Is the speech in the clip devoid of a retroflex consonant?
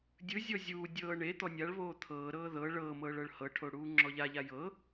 no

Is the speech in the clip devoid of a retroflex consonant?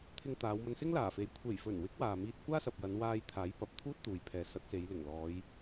yes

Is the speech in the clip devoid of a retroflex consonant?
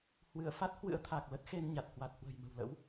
yes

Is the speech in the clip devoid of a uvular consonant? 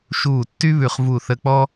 no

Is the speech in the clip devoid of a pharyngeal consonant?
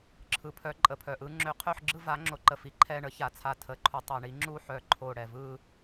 no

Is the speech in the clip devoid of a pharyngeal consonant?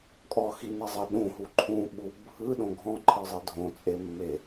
yes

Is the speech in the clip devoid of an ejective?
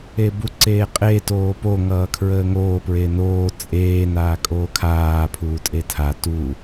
no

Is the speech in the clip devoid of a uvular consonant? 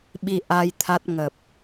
yes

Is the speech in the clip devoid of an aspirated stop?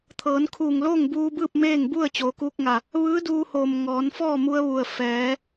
no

